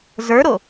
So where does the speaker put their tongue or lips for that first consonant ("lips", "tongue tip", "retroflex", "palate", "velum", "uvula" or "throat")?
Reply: tongue tip